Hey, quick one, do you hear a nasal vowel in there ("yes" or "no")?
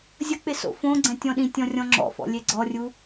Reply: yes